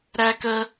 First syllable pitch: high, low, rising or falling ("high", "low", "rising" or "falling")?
high